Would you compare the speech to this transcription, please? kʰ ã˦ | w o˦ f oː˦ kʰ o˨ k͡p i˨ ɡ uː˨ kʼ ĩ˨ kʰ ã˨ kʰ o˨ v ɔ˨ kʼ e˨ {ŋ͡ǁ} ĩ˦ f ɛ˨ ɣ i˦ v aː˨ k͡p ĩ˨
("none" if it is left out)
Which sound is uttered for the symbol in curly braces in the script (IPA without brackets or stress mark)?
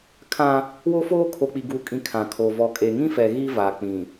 ŋ